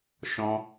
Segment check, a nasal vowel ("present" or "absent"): present